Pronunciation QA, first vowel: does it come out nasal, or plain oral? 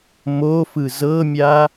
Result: oral